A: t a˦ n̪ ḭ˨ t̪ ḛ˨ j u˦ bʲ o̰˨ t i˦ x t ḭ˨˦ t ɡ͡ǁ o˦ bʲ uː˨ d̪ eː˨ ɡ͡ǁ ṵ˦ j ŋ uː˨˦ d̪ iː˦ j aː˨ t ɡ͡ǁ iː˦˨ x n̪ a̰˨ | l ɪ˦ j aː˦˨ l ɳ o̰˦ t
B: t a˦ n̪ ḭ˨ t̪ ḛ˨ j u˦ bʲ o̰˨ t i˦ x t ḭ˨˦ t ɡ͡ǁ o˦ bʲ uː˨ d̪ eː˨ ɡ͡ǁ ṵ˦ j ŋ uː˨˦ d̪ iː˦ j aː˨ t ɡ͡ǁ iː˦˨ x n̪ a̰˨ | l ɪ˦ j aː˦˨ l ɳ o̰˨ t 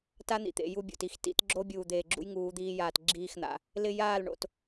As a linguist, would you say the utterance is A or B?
B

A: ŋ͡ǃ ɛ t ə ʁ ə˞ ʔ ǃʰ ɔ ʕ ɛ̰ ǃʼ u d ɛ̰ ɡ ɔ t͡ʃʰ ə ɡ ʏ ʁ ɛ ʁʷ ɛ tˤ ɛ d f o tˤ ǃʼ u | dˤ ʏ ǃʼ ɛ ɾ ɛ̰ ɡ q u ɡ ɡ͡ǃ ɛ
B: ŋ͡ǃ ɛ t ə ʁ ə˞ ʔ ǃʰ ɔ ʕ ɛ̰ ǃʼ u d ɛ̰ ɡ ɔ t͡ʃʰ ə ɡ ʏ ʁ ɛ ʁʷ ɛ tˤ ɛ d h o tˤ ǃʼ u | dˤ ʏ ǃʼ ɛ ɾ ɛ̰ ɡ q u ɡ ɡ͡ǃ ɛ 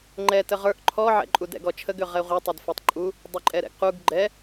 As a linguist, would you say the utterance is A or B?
A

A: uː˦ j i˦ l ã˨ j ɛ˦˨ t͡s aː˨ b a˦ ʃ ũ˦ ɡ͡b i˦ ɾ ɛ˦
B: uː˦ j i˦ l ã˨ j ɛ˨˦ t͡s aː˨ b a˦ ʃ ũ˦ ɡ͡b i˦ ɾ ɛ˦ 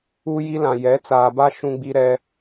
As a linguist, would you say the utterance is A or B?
B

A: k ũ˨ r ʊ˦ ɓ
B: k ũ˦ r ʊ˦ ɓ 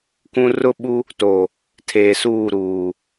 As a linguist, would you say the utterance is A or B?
B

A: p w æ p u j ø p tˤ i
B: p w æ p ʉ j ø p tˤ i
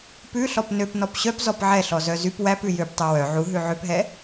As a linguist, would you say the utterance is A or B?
B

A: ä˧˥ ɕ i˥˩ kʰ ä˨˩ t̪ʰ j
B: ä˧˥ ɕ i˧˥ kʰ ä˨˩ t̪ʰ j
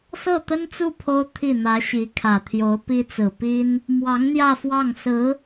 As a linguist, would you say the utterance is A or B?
B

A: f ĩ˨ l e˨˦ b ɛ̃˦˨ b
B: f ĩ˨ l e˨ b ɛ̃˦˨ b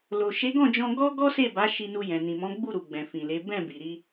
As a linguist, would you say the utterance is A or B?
A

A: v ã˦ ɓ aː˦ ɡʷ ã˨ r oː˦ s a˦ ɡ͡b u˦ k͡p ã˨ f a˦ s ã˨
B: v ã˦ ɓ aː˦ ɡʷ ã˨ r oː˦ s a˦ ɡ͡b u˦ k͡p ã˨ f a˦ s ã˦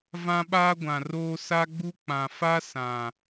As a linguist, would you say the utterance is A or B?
A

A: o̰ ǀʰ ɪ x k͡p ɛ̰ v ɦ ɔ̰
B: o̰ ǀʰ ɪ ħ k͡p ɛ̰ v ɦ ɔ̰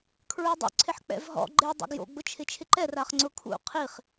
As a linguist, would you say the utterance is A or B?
B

